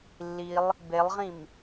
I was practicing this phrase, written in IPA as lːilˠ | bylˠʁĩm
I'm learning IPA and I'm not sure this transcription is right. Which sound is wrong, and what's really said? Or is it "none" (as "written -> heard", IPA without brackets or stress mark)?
y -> e